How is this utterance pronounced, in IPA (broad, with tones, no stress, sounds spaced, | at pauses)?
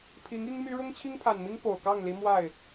pʰ i˧˥ ŋ i˥ ŋ m y˥ ɻ ʊ˥ ŋ t͡ɕʰ i˥ ŋ pʰ a˨˩ n m i˥ ŋ p o˨˩ ʊ̯ k ɑ˥˩ ŋ l i˧˥ m w a˥˩ ɪ̯